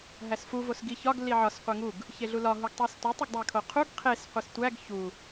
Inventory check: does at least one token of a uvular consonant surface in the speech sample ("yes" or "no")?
yes